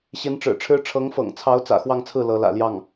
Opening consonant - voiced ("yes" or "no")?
no